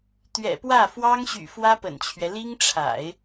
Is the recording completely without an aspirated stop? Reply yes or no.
no